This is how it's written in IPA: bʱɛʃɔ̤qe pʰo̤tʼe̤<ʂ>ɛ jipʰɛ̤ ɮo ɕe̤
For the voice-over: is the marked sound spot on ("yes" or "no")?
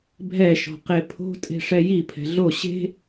yes